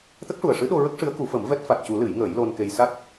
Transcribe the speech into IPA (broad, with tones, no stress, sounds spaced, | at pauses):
t̪ ə˦˥ k̚ ʂ u˨˩ ə̯ ʂ ɨ˧˥ ɗ o˧ ɹ ə˦˥ k̚ ʂ ɨ˧˥ ə̯ k u˨˩˦ f ə˨˩˦ m v ɛ˦˥ t̚ f a˨˩ t̚ c u˨˩˦ l ɨ˨˩˦ j ŋ əː˨˩˦ j l o˧ n k e˧ j s a˦˥ t̚